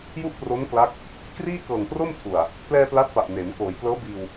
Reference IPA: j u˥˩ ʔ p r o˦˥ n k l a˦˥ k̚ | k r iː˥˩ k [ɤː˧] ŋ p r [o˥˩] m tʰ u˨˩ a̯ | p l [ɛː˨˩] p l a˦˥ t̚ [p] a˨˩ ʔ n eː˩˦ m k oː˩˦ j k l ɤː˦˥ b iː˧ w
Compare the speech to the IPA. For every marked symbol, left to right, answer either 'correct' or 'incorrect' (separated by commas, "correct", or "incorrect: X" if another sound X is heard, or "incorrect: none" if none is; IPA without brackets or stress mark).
incorrect: ɤː˨˩, correct, incorrect: ɛː˧, correct